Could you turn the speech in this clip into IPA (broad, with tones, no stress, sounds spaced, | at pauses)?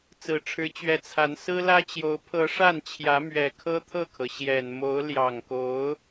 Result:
t͡s ɹ̩˨˩ ʈ͡ʂʰ ɻ̩˧˥ t͡ɕ ɥ ɛ˧˥ t͡sʰ a˧˥ n s ɹ̩˥ l ä˥ t͡ɕ j o˧˥ ʊ̯ pʰ ɤ˧˥ ʂ a˥˩ n t͡ɕʰ j ä˧˥ m ɥ ɛ˨˩ kʰ ɤ˥ t̪ʰ ɤ˥˩ kʰ ɤ˩ ɕ j ɛ˨˩ n m o˧˥ ʊ̯ l j ɑ˨˩ ŋ k o˧˥ ʊ̯